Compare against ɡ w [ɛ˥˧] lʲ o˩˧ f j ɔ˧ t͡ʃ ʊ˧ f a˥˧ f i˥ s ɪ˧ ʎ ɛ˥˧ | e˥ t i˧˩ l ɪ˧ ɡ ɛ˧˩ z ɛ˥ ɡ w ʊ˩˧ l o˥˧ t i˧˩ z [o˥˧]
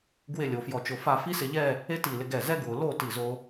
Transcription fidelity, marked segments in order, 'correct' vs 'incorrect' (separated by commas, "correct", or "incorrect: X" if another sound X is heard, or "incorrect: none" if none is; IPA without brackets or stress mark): incorrect: ɪ˥˧, incorrect: o˧